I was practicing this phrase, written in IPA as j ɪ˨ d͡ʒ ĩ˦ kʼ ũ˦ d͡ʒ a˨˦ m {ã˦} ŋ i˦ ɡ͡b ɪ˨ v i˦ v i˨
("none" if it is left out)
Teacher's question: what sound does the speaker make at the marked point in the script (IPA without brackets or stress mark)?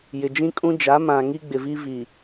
ã˨